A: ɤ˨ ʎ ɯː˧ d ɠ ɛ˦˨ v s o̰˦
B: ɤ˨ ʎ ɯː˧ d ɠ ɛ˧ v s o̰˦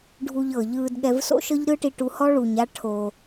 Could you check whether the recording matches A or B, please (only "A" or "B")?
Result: B